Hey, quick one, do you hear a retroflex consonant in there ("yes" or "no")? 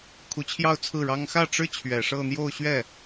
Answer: yes